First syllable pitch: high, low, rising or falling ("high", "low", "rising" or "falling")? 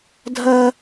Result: high